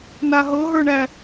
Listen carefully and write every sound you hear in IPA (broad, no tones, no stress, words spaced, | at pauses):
naɦɤɦə˞ɳæ